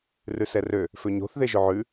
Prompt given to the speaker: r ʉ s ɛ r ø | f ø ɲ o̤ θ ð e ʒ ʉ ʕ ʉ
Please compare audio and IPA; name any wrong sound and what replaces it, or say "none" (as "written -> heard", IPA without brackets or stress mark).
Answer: none